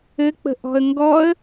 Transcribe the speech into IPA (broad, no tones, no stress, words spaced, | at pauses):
ɘk͡pə̤ ʔɔ̤ə̯ŋɡɔə̯